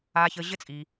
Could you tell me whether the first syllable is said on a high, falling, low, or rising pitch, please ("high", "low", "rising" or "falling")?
low